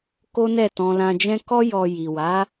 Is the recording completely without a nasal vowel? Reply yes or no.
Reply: no